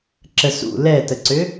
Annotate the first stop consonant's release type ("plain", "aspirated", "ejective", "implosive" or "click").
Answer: click